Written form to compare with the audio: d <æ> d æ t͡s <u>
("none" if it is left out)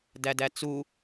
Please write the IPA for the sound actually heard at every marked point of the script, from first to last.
æ, u

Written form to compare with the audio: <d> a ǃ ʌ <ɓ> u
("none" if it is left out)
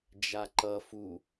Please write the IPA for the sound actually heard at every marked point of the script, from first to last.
d͡ʒ, f

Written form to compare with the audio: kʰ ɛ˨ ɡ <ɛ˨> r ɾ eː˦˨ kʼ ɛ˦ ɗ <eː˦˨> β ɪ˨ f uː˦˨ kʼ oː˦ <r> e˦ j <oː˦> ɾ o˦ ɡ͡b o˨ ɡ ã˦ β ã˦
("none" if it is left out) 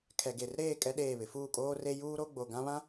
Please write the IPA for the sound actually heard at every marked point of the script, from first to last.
e˨, eː˦˨, r, uː˦

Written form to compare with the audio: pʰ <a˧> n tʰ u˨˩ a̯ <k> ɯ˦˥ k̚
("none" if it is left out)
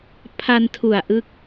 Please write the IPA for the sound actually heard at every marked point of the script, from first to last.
a˧, ʔ

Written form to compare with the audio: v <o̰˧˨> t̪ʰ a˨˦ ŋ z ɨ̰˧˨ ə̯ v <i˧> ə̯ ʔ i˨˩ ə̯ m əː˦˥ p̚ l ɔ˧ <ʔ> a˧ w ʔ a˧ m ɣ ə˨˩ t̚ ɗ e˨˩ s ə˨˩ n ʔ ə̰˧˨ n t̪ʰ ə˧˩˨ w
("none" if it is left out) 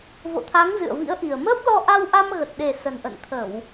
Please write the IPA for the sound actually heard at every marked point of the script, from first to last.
o̰˧˨, ḭ˧˥, ʔ

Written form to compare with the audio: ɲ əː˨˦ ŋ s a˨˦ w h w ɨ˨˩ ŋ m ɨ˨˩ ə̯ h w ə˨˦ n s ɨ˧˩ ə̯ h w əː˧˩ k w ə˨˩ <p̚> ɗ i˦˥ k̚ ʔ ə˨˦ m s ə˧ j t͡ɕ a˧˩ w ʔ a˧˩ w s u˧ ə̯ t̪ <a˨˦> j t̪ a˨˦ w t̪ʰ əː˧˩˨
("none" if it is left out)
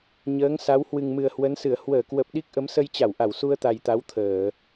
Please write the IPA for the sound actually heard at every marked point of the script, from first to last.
p̚, a˨˩

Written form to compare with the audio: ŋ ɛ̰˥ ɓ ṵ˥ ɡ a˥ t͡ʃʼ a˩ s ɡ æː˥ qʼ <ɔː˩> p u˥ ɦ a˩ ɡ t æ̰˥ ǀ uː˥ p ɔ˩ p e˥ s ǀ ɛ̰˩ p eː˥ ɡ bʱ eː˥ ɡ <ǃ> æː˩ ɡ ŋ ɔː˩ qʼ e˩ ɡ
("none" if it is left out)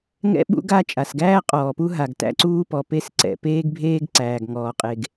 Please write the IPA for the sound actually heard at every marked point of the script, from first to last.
ɔː˩, ǀ

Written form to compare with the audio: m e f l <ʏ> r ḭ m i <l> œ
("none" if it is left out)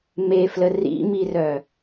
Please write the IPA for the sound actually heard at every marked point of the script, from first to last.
ə, r

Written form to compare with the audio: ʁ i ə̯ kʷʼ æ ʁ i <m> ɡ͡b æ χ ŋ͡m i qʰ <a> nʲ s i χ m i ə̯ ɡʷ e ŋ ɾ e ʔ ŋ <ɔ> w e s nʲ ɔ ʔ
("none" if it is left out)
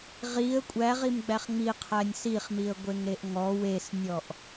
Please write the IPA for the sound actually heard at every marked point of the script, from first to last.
m, æ, ɔ

